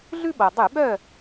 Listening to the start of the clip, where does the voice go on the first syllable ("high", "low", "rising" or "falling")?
high